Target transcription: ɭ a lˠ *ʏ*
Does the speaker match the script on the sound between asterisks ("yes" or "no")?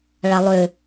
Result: yes